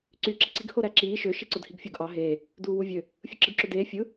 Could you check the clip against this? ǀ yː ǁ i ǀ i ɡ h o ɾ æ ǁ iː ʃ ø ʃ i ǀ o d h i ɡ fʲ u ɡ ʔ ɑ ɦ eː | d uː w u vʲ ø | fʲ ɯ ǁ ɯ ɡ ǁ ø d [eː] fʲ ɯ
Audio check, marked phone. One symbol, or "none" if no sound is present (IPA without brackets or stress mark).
eː